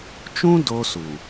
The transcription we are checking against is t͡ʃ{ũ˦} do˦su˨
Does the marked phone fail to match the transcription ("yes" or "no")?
no